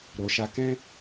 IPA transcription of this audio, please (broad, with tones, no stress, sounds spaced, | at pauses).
ɾ o˨ ʃ a˧ k ɛ̃˦